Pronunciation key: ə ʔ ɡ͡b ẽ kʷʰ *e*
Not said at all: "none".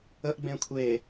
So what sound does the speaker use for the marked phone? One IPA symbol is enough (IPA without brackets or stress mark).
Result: e